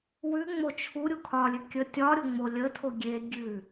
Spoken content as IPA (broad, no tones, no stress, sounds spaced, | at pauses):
w ʉ ŋ͡m o t͡ʃʰ u ɾʲ u kʰ ɒ lʲ ʉ kʲ ə tʲ ɒ ɾʲ o ŋ͡m o lʲ ə tʰ o ɡʲ e ɡʲ ʉ